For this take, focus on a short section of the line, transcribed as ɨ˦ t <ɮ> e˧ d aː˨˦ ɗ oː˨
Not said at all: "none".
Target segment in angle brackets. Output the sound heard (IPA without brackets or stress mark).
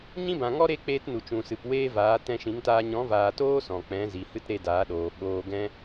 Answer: ɾ